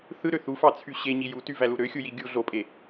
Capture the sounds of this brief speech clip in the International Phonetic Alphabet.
θɯɾø θufɑt͡sʰy ɕeɲi jutyvælu ɾøxʲuji ɡʲu ɮopʼe

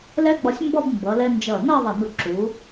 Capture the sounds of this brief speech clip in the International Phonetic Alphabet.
lɛ˥ɡ͡bɒ˧sʲmbɒ˥˧b mbʌ˩˧lɛ˧nd͡ʒʌ˧˩ nʌ˥˧ðˤʌ˧˩nu˧˩ ǁu˩˧

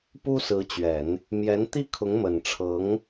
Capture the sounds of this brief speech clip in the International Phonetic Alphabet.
pu˥sɹ̩˧˥t͡ɕɥɛ˨˩˦n | mjɛ˧˥nt̪i˥˩ kʰʊ˧˥ŋmə˨˩nʈ͡ʂʰɤ˧˥ŋ

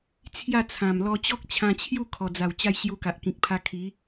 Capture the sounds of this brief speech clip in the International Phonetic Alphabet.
t͡sʰja˥˧t͡sʰã˨˩m lɔ˧t͡ɕɔ˦k̚t͡ɕʰã˧t͡ɕʰju˥˧ kʰɔ˨˩d͡za˨˩w t͡ɕa˥˧jɕju˧ka˨ʔ kĩ˨k̚pʰa˧ kʰi˨˦

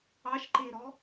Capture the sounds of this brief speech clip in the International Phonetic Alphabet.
ɑʃǃeɾɔ

